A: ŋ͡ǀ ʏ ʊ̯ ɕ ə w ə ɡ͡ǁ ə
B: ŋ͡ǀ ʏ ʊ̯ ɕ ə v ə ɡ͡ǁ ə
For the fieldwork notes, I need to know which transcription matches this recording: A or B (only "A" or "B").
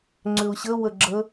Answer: A